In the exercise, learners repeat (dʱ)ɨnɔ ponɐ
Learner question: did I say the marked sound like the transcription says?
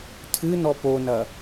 no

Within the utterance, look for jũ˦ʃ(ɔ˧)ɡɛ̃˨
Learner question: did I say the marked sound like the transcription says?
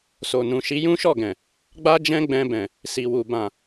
no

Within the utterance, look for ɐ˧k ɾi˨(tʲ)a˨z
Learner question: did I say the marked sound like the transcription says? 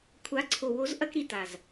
no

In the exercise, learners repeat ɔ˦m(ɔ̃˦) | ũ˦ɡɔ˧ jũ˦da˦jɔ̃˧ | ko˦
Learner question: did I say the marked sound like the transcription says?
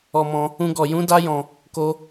yes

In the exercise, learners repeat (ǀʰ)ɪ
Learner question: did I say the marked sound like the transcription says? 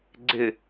no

